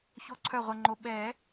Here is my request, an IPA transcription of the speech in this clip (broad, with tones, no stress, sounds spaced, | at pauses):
ç o˦˨ ǀʰ œ˦˨ ʁʷ ɛ˨ ŋ͡ǃ o˨˦ ɓ ɛː˨˩˦